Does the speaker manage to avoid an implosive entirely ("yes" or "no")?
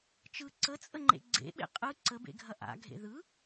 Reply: no